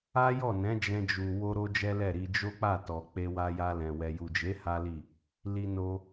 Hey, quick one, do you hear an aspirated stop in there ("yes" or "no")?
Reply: no